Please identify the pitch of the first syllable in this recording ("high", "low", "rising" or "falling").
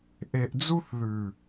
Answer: low